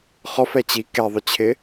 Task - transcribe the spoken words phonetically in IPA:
χɔf ɛt͡ɕi kɛðˤʏt͡ɕʰɪ

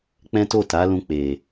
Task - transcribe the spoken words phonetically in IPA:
k͡pɛ̃˦to˦˨ta˨˦lũ˧ k͡pe˨

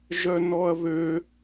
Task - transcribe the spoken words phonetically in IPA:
ʒœnɔɐ̯βø

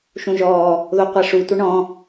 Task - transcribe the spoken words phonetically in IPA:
ʃũʒɔː | ðoqʷaʂu tʷɐɳɔ̃

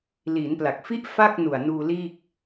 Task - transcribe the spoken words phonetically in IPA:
liː˩˦npla˨˩k̚fi˥˩ʔ fa˥˩k̚ nu˨˩a̯nuː˧liː˥˩k̚

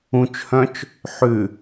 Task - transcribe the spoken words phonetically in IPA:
ũt͡ʃhœ̃t͡ʃ | ħʉ

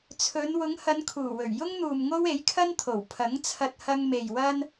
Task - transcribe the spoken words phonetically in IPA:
t͡sʰɵ˨˧n wʊ˨˧ŋhɐ˨˧n kʰuː˨˩wɵ˨˩ɥ jʊ˥ŋn̪uː˨m ŋo˥we˨˥jkʰɐ˥nt̪ʰo˨˩w pʰɐ˨˥ŋt͡sʰɐ˧t̚ hɐ˧ŋme˨j wɐ˥n

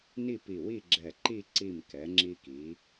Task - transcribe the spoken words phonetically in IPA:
ni˥˧pi˧˩wi˥˧ ɡ͡ǁɛ˧˩ǃi˥˧ ǀi˧˩m kɛ˩˧ŋ͡ǁi˧ki˩˧

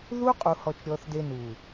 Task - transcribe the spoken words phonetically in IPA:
ðu˦ qʼu˧hɔ˧t͡ʃ ɾʲɔ˧θde˧nu˨

